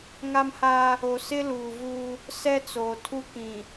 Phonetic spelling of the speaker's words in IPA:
ŋ a˦ m h aː˦ | o˨ s ɪ˦ l uː˨ v uː˦ | s ɛ˦ t͡s oː˨ tʰ u˦ k ĩ˨

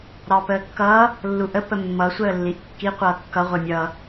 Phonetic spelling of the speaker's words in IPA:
ɾ ɑ p əː kː ʌː | lː u ʔ ə p ə mː ʌ sʷ əː lː i ʔ kː i qʷ ʌː kː ʌ ʁʷ e mʲ ʌː

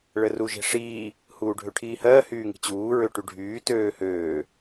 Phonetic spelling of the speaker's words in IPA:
ɭ ə r u ʒ e̤ ʂ iː | h uː ɖʱ ø ʈʰ iː h ɜː h yː ŋ i̤ t͡ɕ uː ɹ ø ʈ y ɖʱ yː t øː h øː

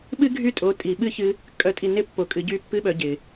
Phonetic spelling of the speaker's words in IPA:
ɓ ɨ˦ ɡʱ y˦˨ tʼ o˨˦ tʼ i˨ ɓ ɨ˦˨ ç ɨ˧ | kʼ œ˧ tʼ i˧ n ɪ˧ pː o˨ kʼ ɨ˨ ɟ y˧ pː ɨ˧ ɓ œ˨ ɟ ɪ˨

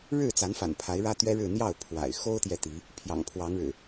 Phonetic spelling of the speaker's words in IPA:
ɻ ɻ̩˥˨ t͡s a˨˦ n f a̰˨˩ n pʰ a˨˦ ɪ̯ ɻ ä˦ t̪ ɥ ɛ˦ ɻ ɻ̩˥˨ n̪ j ɑ˥˨ ʊ̯ pʰ w a̰˨˩ ɪ̯ x o˦ ʊ̯ t̪ j ɛ˨ t̪ i˨˦ | pʰ j ɑ̰˨˩ ŋ pʰ w ɑ˨˦ ŋ ɻ ɻ̩˨˩

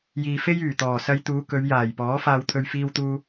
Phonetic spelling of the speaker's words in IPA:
j iː˨ f e˥ j yː˨˩ t̪ ɔː˨˩ s ɐ˧ j t̪ uː˨˧ k ɵ˨˧ ɥ j aː˨˩ j p ɔː˨˥ f aː˧ w t̪ʰ ɵ˧ ɥ f iː˧ w t̪ uː˧

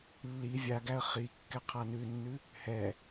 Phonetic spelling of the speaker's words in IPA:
lː i vʲ a ɡ æ ə̯ χ i kː ɛ qʰ a n ʉ nː ʉ | h ɛ

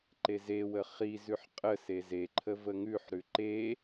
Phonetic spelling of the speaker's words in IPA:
ǃ e z e w ə χ i z ʉ ħ qʼ ə s e z e ǃʰ ə v ə ŋ ʉ ħ ɾ ʉ ǃ e

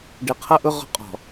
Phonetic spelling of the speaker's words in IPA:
ɖ ɪ˨ qʰ ʌ˦ ʔ ʊ˦ ʁ ɔ̤˦ qʼ ɔ̤˨

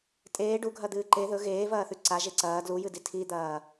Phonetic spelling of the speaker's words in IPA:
tʼ eː ɖ u ɡʱ ɐ d̪ ɨː ǃ e ð ɵ ɣ eː v ɐː θ ʉ ǀ a ʒ e ǀ ɐː d l u j ɨ d i tʰ i d̪ ɐː

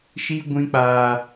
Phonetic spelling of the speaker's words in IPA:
ʃ i˦ ɡʷ ĩ˦ k͡p aː˦

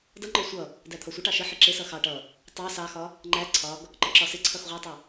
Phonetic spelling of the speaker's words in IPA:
d ʌ ŋ͡ǃ ɒ sʷ ʌ | d æ t̪ʰ ɒ sʷ ə ʈ ɑ ʃ ə ħ ɪ ǁ ɪ s ʌ x ɑ ʈ ʌ | tˤ ɑ s ɑ x ɒ | ŋ͡ǃ æ ǀʰ ɒ ɡ | ǃ ə ǁ ɒ s ɪ ǀʰ ʌ x ʁʷ ʌ tˤ ɪ

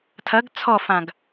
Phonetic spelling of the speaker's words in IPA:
tʰ ɐ ɡ t͡sʰ ɔ f ã ɡ

